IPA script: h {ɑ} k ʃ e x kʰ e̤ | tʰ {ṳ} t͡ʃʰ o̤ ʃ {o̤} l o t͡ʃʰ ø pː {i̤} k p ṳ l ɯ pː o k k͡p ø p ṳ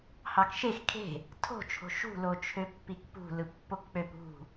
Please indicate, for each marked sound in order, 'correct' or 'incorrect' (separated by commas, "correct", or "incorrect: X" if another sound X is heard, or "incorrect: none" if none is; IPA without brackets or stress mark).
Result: correct, incorrect: o̤, incorrect: ṳ, incorrect: i